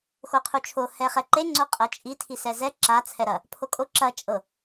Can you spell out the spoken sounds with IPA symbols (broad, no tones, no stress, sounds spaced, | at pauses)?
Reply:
x o qʰ u t͡ʃʰ o h ɛ χ ɛ ǃ e ŋ͡ǀ o qʼ ɐ t͡ʃʼ i tʰ i s ɛ z ɛ ǁ a t͡sʰ ɛ ɾ ɐ | pʰ o kʼ o ǁ ɐ t͡ʃʼ ɤ